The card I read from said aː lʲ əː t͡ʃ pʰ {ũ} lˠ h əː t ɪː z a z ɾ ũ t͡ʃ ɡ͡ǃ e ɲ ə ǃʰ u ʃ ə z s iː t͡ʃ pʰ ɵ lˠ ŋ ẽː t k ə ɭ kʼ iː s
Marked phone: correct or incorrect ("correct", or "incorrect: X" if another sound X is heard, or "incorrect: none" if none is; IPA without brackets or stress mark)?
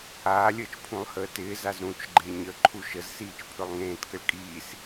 correct